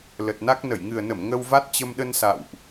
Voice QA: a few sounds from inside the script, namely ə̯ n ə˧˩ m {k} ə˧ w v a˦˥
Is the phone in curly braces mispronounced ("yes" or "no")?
yes